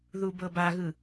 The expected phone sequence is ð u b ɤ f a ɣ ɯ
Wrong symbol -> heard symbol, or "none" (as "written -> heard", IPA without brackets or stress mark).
f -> b